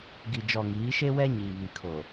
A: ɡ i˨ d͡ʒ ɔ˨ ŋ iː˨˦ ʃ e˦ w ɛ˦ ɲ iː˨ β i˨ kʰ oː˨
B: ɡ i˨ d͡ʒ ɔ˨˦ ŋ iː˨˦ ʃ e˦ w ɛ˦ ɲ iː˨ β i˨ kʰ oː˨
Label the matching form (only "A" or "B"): A